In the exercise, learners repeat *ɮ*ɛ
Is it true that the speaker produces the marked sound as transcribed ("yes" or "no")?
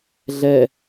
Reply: yes